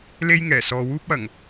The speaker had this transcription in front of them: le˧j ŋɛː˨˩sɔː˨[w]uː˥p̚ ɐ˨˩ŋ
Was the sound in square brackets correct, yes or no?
yes